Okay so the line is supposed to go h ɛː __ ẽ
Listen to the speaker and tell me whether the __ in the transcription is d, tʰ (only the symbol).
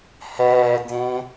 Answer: d